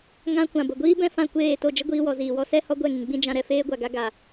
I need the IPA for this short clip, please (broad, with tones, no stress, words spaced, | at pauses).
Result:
ŋã˦ kʷã˨bə˨ ɡʷiː˦bɛ̃˦ fã˦˨kʷeː˦˨to˦˨ d͡ʒə˦ɡʷiː˧wɔ˨ ziː˨wɔ˦ sɛ˦ hɔ˦ɡʷɛ˦˨ ŋĩ˨ɡ͡bĩ˦d͡ʒã˧ ɾɛ˧feː˦ɡʷa˨ɡa˦ ɡa˨